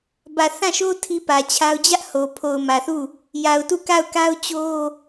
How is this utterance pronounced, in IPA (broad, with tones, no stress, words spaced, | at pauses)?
bä˨θã˦˨ʃo˦ tʰi˦pä˨t͡ɕʰa˦ʊ̯ d͡ʑä˦ʔ ho˨ pʰo˨ʊ̯mä˨θu˦˨ | ja˨ʊ̯tu˦˨ka˦˨ʊ̯ ka˦ʊ̯t͡ɕo˦